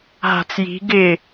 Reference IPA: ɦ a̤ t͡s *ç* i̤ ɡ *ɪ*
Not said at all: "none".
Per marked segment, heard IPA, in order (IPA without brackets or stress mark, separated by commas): j, ɪ